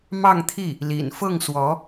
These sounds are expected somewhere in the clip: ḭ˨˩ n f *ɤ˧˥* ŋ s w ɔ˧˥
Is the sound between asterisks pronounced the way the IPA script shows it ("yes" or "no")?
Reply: no